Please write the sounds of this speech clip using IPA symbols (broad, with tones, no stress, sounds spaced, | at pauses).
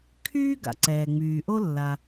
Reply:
kʰ yː˥ ɡ a̰˩ ǀ ɛː˩ ŋ͡m yː˩ ʔ o˥ lː a˩